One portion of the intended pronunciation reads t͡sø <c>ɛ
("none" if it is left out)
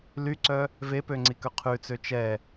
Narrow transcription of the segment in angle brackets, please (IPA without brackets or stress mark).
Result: t͡ʃ